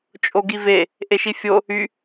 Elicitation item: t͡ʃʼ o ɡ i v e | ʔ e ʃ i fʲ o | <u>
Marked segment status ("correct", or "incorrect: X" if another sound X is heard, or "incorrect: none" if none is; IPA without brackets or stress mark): incorrect: y